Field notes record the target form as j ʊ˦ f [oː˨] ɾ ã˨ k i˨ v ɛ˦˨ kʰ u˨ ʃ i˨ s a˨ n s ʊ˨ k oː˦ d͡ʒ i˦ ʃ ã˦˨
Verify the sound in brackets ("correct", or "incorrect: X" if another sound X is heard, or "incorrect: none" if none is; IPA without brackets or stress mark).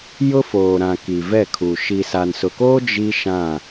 correct